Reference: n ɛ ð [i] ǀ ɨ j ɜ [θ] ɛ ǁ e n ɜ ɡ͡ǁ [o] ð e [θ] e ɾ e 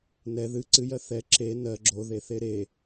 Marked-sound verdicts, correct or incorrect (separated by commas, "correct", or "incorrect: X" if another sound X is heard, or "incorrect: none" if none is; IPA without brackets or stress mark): incorrect: ɨ, correct, correct, correct